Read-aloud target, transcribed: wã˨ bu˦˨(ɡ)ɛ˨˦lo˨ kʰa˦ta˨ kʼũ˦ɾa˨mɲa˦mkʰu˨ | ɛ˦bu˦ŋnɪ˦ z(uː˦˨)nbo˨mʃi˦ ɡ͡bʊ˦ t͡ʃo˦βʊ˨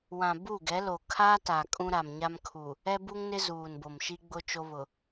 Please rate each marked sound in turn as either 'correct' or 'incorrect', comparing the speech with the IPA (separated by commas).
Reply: correct, incorrect